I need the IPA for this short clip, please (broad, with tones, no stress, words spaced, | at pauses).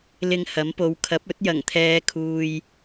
lɪ˧ŋ hɐ˨˥mpo˨˧w kʰɐ˨˥p̚ɵ˨˥t̚ jɐ˨˩ŋt̪ʰɛː˨˧kʰuː˨j